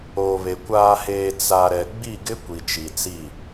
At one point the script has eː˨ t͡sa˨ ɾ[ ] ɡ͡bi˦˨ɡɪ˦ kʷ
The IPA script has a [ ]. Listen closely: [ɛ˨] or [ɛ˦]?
ɛ˨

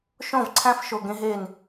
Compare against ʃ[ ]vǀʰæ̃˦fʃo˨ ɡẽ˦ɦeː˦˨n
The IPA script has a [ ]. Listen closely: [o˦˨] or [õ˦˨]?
õ˦˨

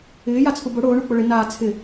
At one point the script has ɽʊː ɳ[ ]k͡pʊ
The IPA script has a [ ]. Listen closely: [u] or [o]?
u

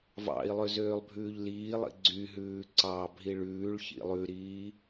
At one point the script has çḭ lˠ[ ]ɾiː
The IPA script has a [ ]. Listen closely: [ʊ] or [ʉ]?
ʉ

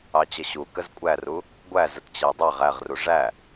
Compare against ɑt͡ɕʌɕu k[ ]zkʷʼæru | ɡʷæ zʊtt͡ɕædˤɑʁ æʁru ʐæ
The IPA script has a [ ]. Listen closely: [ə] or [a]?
ə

